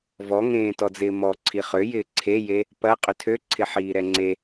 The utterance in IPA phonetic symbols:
vɔ ŋẽːtɔd͡zɪːmɔ ǀʰiχøjɪː ǀʰeje | pɐ qʼʏtʰø ǀʰɪħiːɾɛŋ͡ǀe

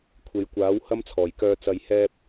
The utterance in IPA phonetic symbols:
kʷʰe˨˧jkʷaː˨˥w hɐ˥mt͡sʰɔː˨˩jkœː˧ t͡sɐ˨jhɛː˧p̚

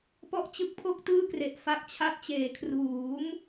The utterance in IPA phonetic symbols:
pɔ˥˩ʔt͡ɕɯ˦˥k̚pʰo˥˩k̚ tɯː˥˩kre˨˩ʔ fa˦˥k̚t͡ɕʰa˦˥t̚t͡ɕeː˩˦ kʰruː˩˦m

